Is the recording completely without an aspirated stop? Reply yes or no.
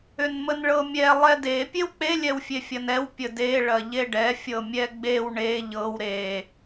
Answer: yes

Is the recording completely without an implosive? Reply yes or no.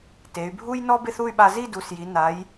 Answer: no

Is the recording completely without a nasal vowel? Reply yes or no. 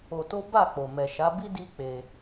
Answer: yes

